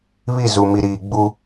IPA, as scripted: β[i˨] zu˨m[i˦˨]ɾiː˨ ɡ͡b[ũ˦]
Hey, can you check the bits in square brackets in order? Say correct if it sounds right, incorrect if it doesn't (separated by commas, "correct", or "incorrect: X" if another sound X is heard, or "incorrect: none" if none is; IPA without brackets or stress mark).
incorrect: i˦˨, incorrect: i˨, incorrect: u˦